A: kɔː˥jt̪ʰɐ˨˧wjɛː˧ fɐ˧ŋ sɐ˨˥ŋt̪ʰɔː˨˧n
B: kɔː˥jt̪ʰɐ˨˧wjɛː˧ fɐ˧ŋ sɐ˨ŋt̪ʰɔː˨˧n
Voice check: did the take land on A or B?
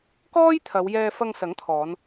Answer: A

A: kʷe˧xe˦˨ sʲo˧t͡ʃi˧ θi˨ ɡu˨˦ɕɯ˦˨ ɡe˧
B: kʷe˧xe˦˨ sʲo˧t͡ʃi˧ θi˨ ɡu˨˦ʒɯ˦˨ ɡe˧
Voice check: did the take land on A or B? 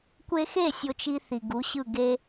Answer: A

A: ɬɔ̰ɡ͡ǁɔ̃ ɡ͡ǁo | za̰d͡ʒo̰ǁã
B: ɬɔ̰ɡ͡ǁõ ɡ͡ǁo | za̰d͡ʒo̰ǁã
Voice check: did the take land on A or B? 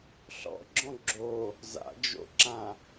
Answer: A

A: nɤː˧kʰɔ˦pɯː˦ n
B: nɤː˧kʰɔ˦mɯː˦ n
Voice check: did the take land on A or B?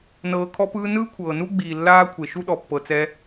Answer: A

